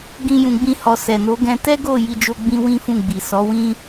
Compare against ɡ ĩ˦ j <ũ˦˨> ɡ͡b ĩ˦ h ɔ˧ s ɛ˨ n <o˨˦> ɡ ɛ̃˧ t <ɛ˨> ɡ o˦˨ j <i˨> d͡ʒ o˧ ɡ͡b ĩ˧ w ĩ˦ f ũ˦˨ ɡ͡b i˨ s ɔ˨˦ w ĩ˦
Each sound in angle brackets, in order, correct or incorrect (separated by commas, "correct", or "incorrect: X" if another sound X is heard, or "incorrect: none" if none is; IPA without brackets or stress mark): incorrect: ũ˧, correct, incorrect: ɛ˦, incorrect: i˧